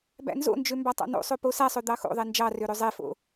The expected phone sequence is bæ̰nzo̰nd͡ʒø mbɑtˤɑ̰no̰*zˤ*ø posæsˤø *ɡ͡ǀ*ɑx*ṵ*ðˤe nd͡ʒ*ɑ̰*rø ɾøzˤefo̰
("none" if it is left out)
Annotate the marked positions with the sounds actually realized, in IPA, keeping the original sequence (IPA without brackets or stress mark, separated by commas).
sˤ, d̪, o̰, ɑ